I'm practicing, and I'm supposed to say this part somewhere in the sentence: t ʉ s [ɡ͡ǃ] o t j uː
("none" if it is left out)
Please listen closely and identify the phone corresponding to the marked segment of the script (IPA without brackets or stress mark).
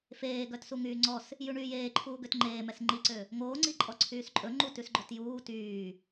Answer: ɡ͡ǃ